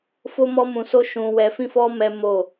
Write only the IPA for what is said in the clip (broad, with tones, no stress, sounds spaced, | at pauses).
f o˦ m ɔ˦ m ũ˧ s o˦ ʃ ũ˧ w ɛ˧ f ĩ˦ f ɔ˦ m ɛ˦ m o˦˨